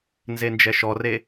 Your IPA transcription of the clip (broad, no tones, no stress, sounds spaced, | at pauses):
n z e n d͡ʒ ɛ ʃ ɔ r e